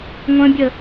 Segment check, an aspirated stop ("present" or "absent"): absent